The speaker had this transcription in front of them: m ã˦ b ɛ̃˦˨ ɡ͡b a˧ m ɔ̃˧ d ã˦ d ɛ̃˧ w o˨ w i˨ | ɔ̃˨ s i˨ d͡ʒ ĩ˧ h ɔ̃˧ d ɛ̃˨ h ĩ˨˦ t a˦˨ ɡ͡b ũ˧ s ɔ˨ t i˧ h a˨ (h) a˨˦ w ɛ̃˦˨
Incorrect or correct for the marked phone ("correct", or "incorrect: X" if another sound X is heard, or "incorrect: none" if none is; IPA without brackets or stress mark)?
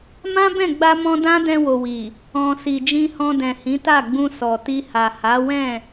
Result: correct